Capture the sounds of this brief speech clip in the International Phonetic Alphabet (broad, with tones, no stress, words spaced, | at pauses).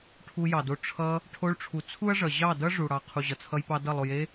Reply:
ʈʰu˧ jɑ˨do˧ ʈ͡ʂʰʌ˧ | ʈʰo˧ɭʈ͡ʂʰu˨ t͡sʰu˦ɐ̯ʐʌ˨ ʑɑ˦˨dʌ˦ ʐu˨ɽɑ˨ qʰu˨ʑʌ˨t͡sʰʌ˧jpɑ˧ dʌ˦˨lˠo˧je˦